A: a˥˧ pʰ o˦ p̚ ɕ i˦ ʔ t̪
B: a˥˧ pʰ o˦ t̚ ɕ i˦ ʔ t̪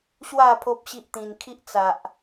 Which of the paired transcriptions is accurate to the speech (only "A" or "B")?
A